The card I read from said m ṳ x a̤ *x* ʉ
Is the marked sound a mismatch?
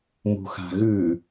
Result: yes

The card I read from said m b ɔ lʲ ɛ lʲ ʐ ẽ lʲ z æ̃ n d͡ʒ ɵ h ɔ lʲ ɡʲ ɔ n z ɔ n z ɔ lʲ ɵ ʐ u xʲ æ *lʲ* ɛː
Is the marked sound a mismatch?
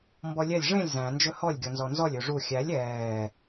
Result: no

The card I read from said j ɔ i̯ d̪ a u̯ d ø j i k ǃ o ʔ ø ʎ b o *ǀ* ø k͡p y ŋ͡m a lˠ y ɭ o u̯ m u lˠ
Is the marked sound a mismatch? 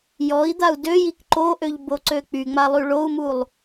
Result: no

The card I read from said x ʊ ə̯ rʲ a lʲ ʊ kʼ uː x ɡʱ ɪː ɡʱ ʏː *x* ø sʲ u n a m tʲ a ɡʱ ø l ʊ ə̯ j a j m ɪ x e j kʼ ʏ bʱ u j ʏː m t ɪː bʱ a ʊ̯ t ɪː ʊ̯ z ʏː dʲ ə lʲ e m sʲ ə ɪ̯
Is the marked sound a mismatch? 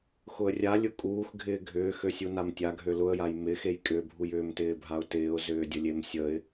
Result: no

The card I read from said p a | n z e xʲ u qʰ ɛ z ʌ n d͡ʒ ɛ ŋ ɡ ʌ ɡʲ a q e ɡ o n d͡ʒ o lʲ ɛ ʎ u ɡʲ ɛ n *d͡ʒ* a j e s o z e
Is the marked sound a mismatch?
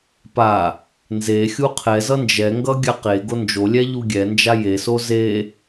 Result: no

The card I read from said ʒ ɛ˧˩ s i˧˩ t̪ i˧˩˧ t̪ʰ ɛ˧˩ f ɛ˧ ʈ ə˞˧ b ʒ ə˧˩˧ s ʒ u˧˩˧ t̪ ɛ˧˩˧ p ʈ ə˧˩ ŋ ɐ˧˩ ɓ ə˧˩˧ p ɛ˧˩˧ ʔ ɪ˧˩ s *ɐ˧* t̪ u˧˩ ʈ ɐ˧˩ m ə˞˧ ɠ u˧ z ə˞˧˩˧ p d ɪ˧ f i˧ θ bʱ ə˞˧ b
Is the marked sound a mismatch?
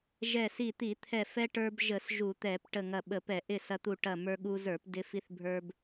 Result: no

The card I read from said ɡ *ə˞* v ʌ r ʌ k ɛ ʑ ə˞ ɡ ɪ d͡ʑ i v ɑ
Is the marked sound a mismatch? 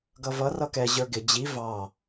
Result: yes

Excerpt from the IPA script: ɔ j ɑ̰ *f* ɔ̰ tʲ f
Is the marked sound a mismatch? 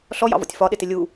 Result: yes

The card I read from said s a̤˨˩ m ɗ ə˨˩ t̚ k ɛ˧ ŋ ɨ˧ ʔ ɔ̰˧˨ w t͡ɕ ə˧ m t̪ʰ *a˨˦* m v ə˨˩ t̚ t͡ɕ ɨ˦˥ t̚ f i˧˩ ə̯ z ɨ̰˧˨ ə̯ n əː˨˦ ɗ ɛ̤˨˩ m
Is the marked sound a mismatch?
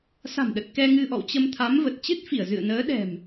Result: no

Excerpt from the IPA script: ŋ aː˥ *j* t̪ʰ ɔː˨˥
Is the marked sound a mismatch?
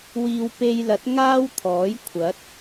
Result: yes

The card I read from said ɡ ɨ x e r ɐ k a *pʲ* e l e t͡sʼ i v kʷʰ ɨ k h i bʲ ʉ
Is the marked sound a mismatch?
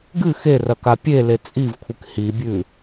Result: no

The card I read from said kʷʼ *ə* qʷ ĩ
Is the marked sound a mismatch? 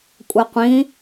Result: no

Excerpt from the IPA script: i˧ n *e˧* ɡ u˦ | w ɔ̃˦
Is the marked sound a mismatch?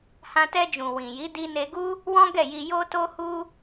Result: no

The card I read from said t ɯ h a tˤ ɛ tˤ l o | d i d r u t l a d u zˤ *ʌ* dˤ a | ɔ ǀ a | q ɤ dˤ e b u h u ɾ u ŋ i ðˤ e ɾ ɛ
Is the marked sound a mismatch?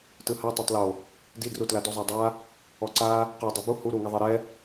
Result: yes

